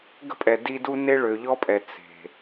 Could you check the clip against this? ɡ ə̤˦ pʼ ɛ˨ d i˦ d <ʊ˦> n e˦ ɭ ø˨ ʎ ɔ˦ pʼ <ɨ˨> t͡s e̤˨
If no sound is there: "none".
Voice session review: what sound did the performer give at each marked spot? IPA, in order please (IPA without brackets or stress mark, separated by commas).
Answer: u˦, ɛ˨